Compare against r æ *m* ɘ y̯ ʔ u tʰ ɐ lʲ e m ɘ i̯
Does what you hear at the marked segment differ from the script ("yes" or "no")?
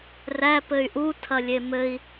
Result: yes